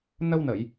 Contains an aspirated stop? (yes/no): no